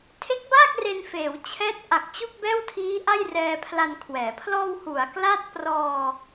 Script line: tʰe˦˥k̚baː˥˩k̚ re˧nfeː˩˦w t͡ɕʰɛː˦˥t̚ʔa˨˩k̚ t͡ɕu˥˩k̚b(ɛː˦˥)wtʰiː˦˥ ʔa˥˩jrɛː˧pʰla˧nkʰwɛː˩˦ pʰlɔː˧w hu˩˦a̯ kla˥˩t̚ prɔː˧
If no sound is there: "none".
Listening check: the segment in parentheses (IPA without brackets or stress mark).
ɛː˥˩